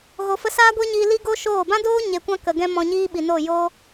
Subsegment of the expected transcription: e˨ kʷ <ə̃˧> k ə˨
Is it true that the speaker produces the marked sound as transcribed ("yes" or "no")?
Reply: no